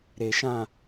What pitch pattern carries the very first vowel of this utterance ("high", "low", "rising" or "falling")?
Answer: low